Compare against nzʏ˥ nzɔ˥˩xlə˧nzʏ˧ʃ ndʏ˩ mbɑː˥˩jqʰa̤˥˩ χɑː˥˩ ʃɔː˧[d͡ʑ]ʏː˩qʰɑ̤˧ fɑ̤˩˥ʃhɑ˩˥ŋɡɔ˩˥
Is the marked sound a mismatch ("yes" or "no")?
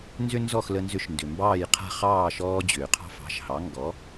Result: no